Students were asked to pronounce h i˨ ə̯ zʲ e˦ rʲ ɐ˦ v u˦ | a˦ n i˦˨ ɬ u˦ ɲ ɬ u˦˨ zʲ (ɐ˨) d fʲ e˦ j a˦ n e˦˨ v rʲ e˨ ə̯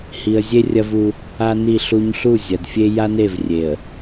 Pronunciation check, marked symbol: correct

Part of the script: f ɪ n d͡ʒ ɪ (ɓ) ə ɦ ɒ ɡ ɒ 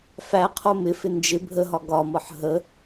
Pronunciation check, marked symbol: incorrect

